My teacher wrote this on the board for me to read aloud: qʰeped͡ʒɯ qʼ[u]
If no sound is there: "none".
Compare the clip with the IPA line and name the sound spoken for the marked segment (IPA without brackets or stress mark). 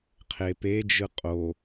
o